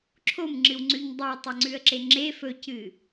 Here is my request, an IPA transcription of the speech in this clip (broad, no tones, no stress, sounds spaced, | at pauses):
ǁʰ o m ŋ͡ǁ ɨ w ŋ͡ǀ ʉ ɲ dˤ i ə̯ tˤ ɐ ŋ͡ǀ ʉ ə̯ ǁ e ŋ͡ǁ e f ɵ c ɨ